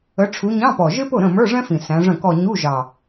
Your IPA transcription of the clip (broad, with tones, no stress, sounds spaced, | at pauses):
ə˨˦ ʈ͡ʂʰ u˨˦ ɲ ɑ̃˧˥˧ p ɔ˨˩ ʒ ɪ˥ p ʊ˥˩ ɾ ə̃˥˩ m ə˞˧˥˧ ʐ ɛ̃˥ f ĩ˨˩ s æ̃˨˦ ʐ ə̃˥˩ k ɔ˥˧ ɲ u˧˥˧ ʒ ɑ˨˩